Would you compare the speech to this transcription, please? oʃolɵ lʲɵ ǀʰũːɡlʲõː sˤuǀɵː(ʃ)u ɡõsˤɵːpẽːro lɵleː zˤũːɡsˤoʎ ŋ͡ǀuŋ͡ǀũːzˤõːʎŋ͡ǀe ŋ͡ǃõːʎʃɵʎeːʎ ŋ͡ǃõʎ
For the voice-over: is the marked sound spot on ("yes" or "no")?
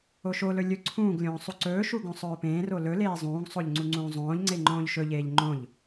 yes